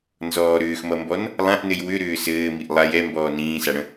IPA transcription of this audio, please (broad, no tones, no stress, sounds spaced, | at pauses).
n z ɔː ɾ ʏː x m ʌ m b ɔ n | lˠ ã ʔ n ɘ j w ʏ ɾ ʏː s ɘː m i ʔ lˠ a j ɛ m b ɔː n ĩː s a ɽ ə̃